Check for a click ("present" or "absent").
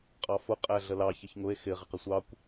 absent